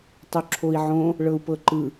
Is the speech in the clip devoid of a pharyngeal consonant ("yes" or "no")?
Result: no